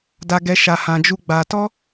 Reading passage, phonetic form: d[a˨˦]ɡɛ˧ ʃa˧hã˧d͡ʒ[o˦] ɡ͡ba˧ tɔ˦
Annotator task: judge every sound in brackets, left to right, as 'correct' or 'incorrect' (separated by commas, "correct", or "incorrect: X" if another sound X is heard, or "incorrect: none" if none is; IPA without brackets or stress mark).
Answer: incorrect: a˧, incorrect: u˦